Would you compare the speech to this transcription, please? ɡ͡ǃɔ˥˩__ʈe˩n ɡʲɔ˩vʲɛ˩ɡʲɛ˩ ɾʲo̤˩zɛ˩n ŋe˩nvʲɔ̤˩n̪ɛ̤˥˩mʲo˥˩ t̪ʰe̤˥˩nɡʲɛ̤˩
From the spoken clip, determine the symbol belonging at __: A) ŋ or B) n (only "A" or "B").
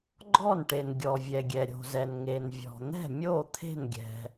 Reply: B